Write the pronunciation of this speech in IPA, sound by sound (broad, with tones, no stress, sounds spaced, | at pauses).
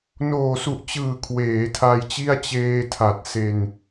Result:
n oː˨˩ s u˨˩ ʔ t͡ɕ ɯː˨˩ kʰ w eː˩˦ tʰ a˧ j t͡ɕ i˥˩ a̯ t͡ɕ eː˧ tʰ a˨˩ t̚ s e˧ n